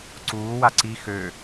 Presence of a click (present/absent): present